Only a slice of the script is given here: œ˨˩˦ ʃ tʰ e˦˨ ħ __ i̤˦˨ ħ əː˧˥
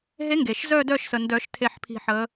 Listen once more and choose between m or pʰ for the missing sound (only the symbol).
pʰ